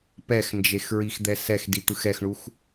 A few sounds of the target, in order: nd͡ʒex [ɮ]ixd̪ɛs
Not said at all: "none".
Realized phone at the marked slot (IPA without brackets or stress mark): ɹ